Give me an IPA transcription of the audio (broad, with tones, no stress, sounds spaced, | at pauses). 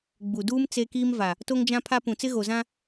ɡ͡b u˨ d uː˦ m t͡s e˦ k iː˦ m v a˨ | t o˦ ŋ d͡ʒ ã˦ pʰ a˦ p ũ˨ t͡s ɪ˦ ɣ o˨ z ã˦